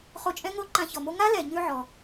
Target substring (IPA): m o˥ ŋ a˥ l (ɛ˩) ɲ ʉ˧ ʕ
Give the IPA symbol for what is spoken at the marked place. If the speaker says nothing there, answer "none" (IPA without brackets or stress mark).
ɛ˩